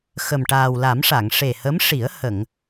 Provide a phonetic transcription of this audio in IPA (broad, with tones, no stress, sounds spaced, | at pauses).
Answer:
x ə˨˩ m ʈ aː˨˩ w l a˨˩˦ m ʂ a˨˩˨ ŋ ʂ e˨˩ h ə˧˥ m ʂ i˨˩˦ ə̯ h ə˨˩˨ ŋ